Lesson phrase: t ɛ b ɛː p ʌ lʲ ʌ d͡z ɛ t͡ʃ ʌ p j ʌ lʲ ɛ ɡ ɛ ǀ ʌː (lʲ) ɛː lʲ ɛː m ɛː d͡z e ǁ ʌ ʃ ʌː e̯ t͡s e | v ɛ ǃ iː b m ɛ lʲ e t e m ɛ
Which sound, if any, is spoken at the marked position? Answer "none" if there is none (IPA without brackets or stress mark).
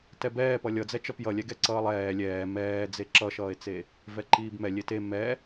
lˠ